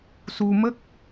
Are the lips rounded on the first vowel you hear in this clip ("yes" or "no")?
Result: yes